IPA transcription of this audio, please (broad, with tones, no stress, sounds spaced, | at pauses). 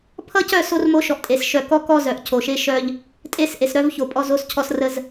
pʰ ʌ˦ c œ˦˨ s o˦ r m o˦ ʃ ɔ˨ ʔ tʼ e˨ s ʃ œ˨ k ɔ˦ k ɔ˦ z œ˨ ʔ cʰ o˨ ʃ e˦ ʃ œ˦ ʎ | tʼ e˦˨ s ʔ e˨ s ɾ œ˦ v ç o˨ pʼ ɔ˦ z o˦ s cʰ ɔ˦ s r ə˦ z